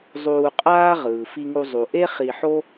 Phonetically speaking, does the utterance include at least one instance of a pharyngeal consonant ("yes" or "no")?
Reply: yes